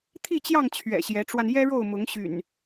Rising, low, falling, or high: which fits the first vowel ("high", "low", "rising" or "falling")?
falling